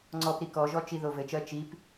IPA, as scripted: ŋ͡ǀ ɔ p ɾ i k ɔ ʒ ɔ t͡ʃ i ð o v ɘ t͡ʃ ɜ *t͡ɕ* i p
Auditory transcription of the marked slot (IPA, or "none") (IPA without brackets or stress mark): t͡ʃ